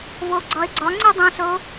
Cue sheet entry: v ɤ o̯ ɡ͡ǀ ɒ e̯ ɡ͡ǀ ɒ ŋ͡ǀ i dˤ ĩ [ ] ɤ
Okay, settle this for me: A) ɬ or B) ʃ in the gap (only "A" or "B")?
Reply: A